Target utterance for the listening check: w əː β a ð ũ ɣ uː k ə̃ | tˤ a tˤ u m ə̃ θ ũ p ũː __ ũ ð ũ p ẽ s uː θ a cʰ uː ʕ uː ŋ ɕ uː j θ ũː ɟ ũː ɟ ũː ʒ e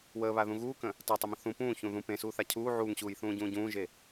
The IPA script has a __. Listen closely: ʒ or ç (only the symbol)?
ç